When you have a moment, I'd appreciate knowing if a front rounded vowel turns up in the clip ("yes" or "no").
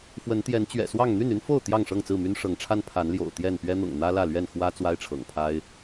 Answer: yes